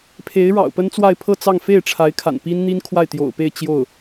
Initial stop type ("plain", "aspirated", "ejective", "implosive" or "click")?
aspirated